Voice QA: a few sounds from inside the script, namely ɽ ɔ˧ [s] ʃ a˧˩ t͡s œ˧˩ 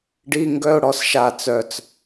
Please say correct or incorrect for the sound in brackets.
correct